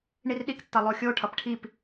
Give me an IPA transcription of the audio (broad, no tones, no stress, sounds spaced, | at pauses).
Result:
ɳ i r ɗ i k tː ʌ lˠ o xʲ o ʈʰ ʌ p ʈʰ i p